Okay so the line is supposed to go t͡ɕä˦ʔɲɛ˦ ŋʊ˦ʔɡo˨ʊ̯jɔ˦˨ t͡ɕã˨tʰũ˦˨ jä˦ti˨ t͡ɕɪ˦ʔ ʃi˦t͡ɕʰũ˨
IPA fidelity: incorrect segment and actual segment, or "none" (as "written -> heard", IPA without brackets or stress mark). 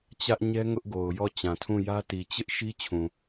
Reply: none